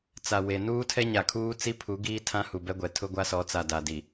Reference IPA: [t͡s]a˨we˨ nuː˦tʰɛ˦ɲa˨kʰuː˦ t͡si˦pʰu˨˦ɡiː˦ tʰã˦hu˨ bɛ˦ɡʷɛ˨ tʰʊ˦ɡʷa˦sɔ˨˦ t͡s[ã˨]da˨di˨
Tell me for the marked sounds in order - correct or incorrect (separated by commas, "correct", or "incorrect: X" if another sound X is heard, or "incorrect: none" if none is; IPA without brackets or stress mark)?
correct, incorrect: a˨